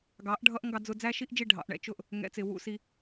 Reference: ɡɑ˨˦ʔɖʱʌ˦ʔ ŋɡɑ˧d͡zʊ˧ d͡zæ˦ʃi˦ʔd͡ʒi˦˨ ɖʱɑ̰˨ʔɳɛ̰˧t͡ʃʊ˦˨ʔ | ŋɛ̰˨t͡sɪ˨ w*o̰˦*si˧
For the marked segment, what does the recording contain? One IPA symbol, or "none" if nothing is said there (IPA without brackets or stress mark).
ṵ˦